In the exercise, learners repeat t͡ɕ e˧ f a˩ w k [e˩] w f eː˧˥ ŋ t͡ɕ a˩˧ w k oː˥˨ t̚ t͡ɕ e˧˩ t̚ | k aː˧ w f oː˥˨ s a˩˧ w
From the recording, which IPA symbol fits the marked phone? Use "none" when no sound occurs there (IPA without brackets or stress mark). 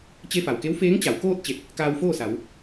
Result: e˧˥